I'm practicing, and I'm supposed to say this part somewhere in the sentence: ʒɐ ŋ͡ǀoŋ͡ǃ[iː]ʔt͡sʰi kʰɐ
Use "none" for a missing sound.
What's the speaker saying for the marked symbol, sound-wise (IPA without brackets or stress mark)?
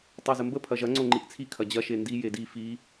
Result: i